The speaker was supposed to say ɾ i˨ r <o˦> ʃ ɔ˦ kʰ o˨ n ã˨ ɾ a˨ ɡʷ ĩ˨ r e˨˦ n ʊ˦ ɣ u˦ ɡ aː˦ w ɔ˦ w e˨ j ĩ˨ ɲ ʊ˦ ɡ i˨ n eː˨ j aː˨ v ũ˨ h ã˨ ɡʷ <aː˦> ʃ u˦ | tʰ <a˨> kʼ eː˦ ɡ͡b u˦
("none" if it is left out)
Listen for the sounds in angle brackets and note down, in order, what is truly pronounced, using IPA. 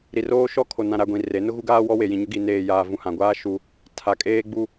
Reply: oː˦, aː˦, a˨

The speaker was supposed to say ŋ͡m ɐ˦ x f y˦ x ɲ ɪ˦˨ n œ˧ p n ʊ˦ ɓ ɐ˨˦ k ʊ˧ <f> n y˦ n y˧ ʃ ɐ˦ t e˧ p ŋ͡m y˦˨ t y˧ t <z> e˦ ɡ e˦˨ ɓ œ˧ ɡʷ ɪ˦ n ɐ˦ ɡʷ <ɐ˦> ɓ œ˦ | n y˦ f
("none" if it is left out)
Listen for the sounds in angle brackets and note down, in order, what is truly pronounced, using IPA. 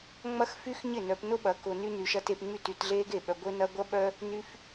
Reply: none, ɮ, ɐ˦

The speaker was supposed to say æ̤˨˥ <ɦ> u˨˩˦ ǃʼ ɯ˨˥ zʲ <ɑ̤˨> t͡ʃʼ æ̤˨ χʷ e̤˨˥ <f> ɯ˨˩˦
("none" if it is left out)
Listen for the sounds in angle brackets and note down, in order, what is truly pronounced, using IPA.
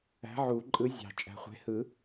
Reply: ʕ, ɑ̤˨, h

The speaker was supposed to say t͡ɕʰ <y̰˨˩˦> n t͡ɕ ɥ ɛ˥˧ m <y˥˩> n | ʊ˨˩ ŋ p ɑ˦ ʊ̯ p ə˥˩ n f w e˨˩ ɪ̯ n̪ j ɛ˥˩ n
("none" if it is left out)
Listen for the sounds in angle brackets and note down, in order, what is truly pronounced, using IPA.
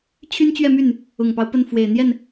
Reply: y˥, y˥˩

